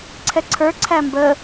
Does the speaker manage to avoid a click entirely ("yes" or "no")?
no